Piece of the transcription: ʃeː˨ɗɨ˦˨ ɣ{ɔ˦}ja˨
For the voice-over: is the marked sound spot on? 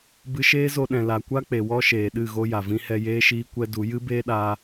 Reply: no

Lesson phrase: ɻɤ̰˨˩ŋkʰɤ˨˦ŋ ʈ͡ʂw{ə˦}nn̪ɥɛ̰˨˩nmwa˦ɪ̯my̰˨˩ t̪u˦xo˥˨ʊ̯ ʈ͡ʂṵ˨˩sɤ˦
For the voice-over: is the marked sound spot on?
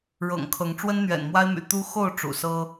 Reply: yes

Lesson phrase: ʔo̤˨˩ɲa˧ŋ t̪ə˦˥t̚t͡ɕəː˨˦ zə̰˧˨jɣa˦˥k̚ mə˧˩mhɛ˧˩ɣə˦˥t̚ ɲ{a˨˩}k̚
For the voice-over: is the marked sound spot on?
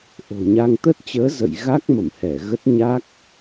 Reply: no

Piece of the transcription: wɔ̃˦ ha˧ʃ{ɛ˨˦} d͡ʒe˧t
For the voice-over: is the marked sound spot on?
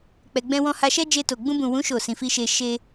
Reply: no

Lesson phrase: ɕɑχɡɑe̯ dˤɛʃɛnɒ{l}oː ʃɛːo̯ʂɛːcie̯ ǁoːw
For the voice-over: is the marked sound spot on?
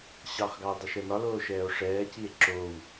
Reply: yes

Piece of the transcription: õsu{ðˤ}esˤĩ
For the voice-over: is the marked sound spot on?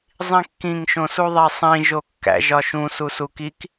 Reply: yes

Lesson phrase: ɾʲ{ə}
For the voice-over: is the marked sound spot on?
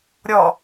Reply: no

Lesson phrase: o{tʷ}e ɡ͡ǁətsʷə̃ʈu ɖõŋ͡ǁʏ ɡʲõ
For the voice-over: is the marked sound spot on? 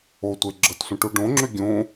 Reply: yes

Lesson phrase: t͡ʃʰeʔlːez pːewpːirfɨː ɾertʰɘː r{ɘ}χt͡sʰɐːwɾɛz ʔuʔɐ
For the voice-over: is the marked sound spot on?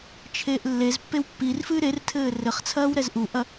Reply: yes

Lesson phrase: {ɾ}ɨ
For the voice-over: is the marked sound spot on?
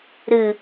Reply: yes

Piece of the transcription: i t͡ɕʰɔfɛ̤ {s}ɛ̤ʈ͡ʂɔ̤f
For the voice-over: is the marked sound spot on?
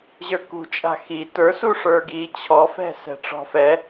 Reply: yes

